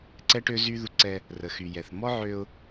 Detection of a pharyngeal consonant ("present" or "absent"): present